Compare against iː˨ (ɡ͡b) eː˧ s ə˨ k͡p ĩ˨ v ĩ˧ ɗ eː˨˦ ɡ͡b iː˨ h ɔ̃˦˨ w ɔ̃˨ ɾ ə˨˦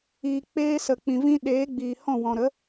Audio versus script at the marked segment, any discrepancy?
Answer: yes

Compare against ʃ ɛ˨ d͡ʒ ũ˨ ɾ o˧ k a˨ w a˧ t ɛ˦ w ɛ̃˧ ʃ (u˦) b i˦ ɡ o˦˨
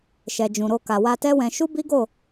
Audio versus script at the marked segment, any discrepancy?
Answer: no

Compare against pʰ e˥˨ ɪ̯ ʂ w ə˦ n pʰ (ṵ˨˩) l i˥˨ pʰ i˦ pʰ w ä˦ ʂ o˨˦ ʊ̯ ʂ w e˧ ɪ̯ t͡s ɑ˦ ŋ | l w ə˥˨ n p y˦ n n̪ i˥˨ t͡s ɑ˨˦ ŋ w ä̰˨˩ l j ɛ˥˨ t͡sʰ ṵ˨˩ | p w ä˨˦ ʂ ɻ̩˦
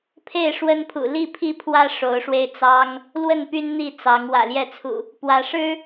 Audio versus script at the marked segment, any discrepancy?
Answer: no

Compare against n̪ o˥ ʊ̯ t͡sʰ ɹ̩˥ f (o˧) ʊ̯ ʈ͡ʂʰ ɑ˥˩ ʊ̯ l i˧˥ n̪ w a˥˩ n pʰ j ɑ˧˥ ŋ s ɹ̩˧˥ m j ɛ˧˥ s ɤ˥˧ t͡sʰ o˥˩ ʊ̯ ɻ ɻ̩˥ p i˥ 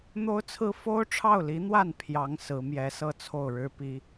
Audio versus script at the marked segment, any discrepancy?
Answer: yes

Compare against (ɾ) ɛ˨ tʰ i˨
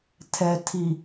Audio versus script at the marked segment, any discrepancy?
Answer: yes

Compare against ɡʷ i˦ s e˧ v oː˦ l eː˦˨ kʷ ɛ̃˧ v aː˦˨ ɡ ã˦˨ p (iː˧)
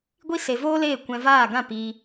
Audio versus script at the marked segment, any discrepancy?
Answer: no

